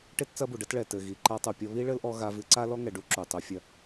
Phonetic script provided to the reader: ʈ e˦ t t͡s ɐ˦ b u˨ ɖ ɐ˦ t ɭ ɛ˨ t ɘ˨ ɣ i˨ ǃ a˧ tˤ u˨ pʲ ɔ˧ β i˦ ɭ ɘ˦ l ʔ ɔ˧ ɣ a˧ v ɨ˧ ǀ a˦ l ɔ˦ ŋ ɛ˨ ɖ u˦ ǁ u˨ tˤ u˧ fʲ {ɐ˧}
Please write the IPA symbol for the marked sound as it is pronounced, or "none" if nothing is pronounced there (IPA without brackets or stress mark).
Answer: ɐ˧